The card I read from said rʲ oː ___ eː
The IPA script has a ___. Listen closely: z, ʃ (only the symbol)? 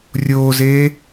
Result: z